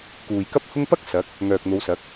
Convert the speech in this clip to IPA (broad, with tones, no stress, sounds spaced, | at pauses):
k uː˨ j k ɐ˥ p̚ h ʊ˥ ŋ p ɐ˥ k̚ s ɐ˨˥ k̚ | ŋ œː˨ k̚ n̪ o˨˧ w s ɐ˨˥ k̚